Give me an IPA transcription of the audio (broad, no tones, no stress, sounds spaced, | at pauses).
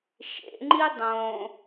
ʃ ḛ ŋ͡ǃ i dˤ õ